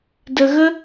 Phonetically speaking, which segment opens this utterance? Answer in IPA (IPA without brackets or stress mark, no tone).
d